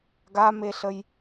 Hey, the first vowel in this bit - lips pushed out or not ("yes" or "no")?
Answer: no